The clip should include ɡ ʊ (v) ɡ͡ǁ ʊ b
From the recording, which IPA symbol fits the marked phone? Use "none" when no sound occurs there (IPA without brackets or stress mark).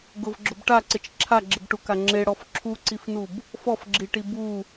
v